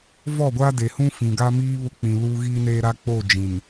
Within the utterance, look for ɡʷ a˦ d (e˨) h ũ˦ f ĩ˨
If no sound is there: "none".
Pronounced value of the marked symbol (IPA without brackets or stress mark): e˨